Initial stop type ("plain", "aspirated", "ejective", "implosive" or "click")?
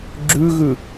click